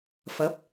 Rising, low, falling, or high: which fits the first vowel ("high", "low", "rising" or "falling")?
rising